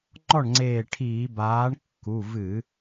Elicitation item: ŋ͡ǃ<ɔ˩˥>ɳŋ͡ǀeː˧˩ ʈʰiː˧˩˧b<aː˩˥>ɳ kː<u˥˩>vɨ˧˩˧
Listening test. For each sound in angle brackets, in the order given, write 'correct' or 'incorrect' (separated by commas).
incorrect, correct, incorrect